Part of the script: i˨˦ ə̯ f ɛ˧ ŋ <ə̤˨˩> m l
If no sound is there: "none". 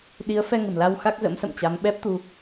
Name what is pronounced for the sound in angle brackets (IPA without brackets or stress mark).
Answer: ə̤˨˩